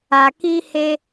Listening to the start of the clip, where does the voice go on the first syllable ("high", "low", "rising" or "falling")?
low